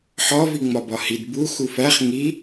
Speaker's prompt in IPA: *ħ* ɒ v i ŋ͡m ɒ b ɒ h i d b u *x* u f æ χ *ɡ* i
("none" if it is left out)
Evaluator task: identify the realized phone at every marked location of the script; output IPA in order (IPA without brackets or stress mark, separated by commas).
ħ, x, ŋ